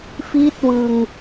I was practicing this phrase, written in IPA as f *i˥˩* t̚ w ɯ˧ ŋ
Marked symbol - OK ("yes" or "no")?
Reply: yes